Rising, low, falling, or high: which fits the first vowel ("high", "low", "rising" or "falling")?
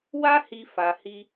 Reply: high